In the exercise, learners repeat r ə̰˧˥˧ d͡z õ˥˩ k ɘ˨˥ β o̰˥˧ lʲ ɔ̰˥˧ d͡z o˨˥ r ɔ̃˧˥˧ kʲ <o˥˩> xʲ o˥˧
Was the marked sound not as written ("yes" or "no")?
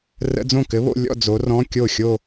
no